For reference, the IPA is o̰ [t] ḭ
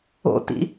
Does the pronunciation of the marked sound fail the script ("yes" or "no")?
no